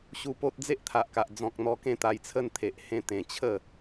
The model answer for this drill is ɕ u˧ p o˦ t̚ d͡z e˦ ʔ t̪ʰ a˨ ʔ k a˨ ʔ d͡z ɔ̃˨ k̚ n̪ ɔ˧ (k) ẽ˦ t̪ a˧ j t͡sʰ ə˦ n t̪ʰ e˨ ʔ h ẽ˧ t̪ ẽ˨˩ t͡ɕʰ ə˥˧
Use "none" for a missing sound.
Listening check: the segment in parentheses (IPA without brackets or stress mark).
k